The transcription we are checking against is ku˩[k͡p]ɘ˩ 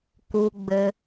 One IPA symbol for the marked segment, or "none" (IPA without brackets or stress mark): ɡ͡b